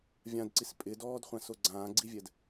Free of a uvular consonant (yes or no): no